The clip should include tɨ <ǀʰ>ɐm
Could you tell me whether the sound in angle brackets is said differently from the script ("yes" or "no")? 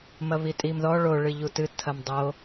yes